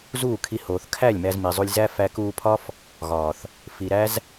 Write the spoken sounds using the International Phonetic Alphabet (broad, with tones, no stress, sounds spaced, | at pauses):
z uː˦˨ kʰ i˧ h oː˨ θ kʰ æ˦˨ lʲ m æ˧ z m i˨ zˤ u˧ lʲ z æ˦ f æ˧ k uː˧ pʰ ɒ˦ f | ɣ ɒː˨ θ | f i˨ ɾ æ˦ z